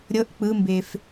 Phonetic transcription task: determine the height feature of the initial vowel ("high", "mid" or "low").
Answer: mid